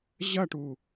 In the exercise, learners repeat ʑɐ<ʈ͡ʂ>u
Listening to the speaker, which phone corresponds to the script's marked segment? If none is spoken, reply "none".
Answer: ʈ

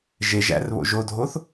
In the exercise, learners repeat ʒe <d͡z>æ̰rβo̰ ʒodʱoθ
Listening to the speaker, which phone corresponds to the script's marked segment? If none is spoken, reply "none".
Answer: ʒ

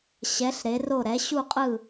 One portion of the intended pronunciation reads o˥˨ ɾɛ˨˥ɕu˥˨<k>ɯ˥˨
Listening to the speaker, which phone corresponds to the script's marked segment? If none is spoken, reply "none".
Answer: qʼ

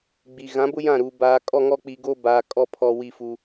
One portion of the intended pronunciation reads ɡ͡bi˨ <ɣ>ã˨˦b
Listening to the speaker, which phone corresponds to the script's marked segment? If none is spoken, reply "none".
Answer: ɣ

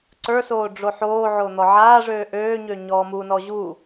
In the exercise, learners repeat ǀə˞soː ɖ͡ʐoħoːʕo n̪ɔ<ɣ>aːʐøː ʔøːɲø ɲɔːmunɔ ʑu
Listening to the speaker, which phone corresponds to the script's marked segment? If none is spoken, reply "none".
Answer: ʕ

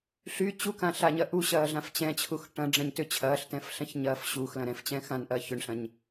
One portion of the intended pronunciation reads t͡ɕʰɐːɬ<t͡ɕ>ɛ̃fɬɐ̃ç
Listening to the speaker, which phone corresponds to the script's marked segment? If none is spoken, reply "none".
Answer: t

